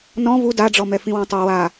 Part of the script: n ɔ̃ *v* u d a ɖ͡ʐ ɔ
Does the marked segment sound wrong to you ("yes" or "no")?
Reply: no